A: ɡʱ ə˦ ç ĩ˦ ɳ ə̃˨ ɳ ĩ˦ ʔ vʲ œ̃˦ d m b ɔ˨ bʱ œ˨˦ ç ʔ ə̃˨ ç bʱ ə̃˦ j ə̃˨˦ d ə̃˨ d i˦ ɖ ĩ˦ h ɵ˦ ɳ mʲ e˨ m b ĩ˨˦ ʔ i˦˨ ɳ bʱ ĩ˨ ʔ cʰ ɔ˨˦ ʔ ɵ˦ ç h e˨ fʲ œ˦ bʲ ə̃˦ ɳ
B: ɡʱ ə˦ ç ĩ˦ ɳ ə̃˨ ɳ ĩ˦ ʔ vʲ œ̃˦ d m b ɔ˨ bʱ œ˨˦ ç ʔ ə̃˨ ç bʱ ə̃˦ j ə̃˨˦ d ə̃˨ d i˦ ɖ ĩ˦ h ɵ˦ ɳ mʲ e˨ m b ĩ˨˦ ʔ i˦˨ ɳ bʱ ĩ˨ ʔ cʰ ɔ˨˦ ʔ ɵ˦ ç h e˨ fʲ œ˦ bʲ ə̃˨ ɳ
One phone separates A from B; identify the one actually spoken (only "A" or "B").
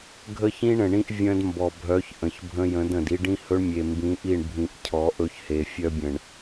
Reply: B